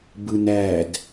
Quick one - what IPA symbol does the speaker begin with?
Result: b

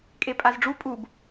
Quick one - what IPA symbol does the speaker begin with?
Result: kʼ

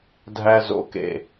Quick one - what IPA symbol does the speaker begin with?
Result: dʱ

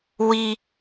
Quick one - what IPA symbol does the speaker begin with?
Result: w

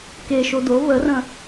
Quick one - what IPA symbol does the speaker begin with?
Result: k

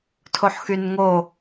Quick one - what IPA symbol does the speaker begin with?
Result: tʰ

